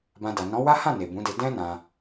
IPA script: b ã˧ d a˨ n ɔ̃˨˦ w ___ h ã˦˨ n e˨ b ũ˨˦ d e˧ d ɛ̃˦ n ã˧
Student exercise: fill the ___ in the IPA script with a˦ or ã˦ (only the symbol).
a˦